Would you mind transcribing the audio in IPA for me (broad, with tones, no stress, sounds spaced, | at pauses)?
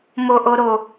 m o˦ ʔ o˦ ɾ o˦